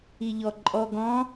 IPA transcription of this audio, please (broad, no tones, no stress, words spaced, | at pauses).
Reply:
iʎɔǃʼɔ ɡɔ̃